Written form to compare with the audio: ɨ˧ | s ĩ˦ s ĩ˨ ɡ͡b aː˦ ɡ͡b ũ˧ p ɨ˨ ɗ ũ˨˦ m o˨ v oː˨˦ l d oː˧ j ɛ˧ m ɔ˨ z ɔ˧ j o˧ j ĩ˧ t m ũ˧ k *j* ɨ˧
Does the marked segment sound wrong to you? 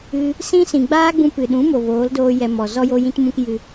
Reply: no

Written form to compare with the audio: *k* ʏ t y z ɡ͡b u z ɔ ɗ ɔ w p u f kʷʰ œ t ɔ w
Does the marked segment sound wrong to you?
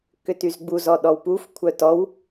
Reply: no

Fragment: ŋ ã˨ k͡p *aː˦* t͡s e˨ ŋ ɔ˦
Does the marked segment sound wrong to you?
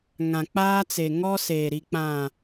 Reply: no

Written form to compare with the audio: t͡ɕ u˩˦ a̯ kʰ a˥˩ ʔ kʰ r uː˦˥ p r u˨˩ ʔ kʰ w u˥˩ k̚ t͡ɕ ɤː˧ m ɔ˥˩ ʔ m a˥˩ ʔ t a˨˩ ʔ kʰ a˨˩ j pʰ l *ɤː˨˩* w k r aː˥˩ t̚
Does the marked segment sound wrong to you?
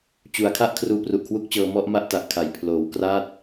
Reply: yes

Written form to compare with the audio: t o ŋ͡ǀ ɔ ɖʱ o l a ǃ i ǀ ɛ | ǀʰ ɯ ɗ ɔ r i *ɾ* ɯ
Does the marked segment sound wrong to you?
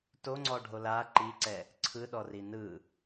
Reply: yes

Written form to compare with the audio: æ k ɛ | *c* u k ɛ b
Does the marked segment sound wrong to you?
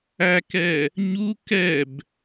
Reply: yes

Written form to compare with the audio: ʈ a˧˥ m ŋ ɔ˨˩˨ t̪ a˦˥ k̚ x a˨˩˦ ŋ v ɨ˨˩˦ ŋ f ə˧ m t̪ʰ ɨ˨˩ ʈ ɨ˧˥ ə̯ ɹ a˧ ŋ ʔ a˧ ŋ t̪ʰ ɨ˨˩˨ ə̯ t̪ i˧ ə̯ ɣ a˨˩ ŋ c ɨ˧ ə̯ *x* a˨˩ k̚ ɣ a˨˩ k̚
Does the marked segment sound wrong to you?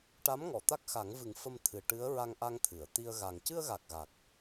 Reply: yes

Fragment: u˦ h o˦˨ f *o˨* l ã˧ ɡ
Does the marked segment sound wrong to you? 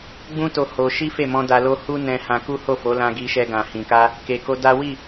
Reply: yes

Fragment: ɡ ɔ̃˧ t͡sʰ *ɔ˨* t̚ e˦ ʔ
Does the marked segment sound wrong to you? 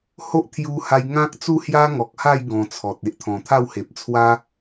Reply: no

